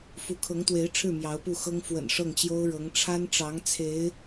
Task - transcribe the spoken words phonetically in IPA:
f u˧˥ kʰ ɤ˧˥ ŋ t̪ w e˧˥ ɪ̯ ʈ͡ʂʰ ɻ̩˥˩ m j ɑ˧˥ ʊ̯ p u˥˩ x ɤ˥ ŋ f w ə̰˨˩ n ʂ ɤ˥˩ ŋ t͡ɕ j o˥ ʊ̯ ɻ ɤ˧˥ ŋ ʈ͡ʂʰ a˥ n ʈ͡ʂ ɑ˧˥ ŋ t͡sʰ e˧˥ ɪ̯

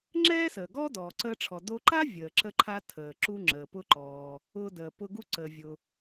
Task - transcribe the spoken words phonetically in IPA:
ŋ͡ǁ ɛː˥ s əː˩ ɡ ɔː˥ d ɔː˩ ǀ əː˧ ʈ͡ʂʰ ɔ˩ d o˧ ǃ a˥ vʲ əː˩ ǁ ə˧ ǃʰ a˧ tʰ əː˩ ǁ u˧ ŋ͡ǁ əː˩ p ʊ˧ ǃ ɔː˩ | ʊː˧ d əː˩ p ʊ˧ ɡ u˧ ǀ əː˩ vʲ ʊ˩

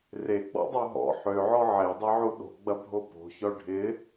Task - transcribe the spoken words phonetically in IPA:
r e ɡ͡b ɔ̰ dˤ o ɦ ɔ̰ ħ ø ʕ ɔ ʕ e dˤ i ʕ u ɗ o̤ ɡ͡b ɐ bʱ o p o̤ ç ɔ ɖʱ ɪ

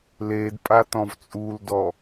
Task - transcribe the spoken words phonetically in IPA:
l e d pʼ a t ɔ̃ v t͡sʼ u l d ɔ

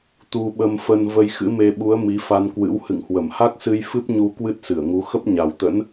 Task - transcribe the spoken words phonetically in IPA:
t̪ u˧ ɓ ə˧ m f ə˧ n v ə˧ j x ɨ̰˧˥ m e˧ ɓ u˨˦ ə̯ m i˨˦ f a˧ n k w ɨ̰˧˥ w h ɨ̰˧˨ ŋ h w ə˧˩ m h a˦˥ k̚ s ɨ˧ j f ɨ˦˥ p̚ ɲ u˧ k w ɨ˦˥ t̚ s ɨ˧˩ ə̯ ŋ u˨˦ x ə˦˥ p̚ ɲ a˨˩ w t̪ ə̰˧˥ n

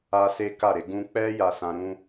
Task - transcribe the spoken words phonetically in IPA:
a˦ s e˦ k a˦˨ ɾ e˨˦ ɡ ũ˧ k͡p ɛ˦ j a˦˨ s ã˧ ɾ ũ˦

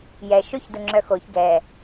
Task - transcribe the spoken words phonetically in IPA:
j ɛ ʃ o ç d ʊ ŋ͡ǁ œ x o ç ɡ ɛ

